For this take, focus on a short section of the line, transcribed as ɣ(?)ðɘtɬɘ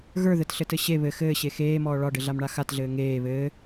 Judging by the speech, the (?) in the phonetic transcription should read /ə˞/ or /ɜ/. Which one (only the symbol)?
ə˞